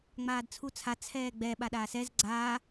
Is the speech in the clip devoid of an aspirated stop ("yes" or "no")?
no